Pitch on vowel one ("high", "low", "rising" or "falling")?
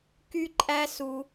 high